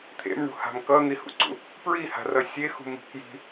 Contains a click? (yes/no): yes